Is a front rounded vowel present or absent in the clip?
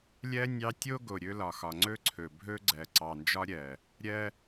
absent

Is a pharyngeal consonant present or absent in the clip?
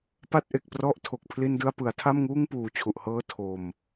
absent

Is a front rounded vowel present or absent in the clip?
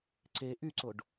present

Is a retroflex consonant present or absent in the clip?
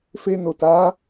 absent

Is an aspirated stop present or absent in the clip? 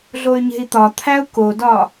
present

